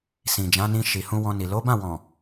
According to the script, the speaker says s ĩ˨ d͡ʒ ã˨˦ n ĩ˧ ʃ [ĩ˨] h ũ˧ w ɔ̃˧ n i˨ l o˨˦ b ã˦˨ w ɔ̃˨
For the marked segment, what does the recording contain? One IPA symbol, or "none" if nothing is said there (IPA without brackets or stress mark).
i˨